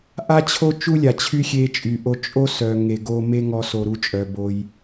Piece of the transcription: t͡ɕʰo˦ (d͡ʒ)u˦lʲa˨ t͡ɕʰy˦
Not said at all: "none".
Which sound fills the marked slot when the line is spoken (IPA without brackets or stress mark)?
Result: t͡ʃ